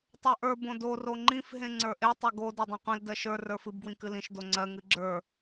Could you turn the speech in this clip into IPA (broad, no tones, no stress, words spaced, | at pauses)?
tˤə˞ʔə˞ bõdo roŋ͡ǃĩf ɦẽŋ͡ǀə˞ʔe tˤoɡo də˞dˤẽqʷĩl dɜʃə˞ rə˞fɨb ɡwĩkɨlĩʃ doŋ͡ǀɜ ŋɨɡ͡ǁə˞